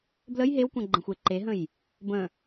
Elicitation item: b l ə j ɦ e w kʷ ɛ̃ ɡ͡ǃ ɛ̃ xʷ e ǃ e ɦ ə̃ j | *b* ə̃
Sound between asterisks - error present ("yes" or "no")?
no